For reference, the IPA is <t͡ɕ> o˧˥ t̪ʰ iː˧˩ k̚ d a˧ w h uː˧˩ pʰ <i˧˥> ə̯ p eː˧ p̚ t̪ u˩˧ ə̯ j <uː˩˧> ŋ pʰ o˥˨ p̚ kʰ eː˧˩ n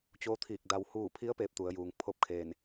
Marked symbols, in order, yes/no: yes, yes, yes

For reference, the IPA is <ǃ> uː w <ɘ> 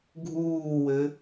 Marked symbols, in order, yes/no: no, yes

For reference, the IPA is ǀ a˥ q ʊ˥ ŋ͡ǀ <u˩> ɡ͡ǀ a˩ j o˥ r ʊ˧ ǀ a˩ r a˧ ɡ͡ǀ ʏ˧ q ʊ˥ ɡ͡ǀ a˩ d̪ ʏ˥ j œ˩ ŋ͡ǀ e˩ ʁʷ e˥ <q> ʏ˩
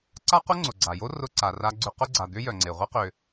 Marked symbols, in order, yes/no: no, yes

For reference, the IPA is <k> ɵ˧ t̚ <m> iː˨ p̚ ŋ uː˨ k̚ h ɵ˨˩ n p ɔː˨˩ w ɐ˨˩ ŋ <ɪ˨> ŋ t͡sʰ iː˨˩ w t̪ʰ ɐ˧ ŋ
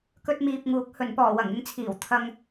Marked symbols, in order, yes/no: yes, yes, yes

